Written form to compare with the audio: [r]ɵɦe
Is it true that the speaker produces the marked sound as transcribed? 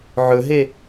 no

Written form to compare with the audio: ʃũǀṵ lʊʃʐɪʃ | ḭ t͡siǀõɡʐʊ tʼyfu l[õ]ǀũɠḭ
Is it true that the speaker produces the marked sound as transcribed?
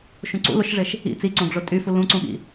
no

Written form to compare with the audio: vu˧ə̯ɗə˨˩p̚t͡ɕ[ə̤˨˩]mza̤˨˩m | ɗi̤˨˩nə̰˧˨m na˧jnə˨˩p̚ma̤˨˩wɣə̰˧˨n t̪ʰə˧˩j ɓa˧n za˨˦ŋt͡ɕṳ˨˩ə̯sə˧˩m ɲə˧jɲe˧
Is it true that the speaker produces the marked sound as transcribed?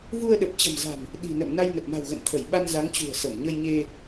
yes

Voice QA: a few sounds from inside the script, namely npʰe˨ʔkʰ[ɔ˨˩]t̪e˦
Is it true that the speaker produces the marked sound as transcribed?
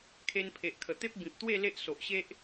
no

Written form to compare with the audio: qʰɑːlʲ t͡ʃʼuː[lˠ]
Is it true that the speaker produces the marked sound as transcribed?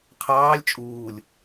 no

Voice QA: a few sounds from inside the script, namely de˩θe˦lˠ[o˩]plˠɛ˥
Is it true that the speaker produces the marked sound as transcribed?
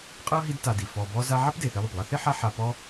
yes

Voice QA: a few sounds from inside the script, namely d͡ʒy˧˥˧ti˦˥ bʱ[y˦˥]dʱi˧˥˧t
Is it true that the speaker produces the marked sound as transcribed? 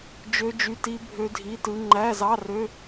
no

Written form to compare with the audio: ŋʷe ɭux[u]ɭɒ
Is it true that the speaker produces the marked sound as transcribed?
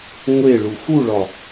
yes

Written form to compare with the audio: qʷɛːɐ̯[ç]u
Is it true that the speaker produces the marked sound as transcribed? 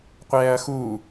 no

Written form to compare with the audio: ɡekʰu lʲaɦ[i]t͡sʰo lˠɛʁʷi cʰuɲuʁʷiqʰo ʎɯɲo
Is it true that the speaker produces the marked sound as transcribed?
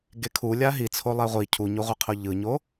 yes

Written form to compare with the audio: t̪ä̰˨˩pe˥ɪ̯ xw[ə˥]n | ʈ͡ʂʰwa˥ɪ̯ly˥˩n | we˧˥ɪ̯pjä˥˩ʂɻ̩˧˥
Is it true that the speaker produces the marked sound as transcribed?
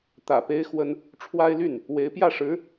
yes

